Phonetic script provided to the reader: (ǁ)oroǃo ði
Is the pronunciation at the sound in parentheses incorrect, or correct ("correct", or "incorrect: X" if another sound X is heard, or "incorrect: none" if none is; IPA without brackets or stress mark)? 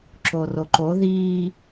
correct